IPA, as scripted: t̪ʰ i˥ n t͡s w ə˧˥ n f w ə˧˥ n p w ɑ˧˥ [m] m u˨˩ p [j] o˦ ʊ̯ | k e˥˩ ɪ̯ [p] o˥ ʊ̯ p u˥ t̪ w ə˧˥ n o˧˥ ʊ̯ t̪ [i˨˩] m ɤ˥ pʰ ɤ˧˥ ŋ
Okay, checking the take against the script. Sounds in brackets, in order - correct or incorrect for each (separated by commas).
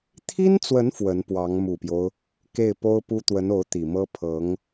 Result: incorrect, correct, correct, correct